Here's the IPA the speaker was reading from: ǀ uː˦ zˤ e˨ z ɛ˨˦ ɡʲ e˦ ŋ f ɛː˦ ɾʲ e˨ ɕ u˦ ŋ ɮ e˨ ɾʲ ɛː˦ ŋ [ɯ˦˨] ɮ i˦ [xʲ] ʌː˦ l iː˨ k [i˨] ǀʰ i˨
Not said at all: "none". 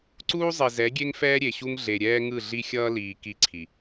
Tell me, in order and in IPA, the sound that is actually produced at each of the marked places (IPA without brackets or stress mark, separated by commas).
ɯ˦˨, xʲ, i˦